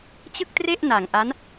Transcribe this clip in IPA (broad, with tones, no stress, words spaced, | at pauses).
t͡ɕɯ˥˩k̚tre˥˩ʔ na˨˩ŋʔa˦˥n